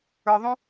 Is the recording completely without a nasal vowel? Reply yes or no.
no